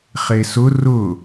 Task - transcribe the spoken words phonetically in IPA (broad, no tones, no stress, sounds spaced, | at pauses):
χ e s ʊ r ʊ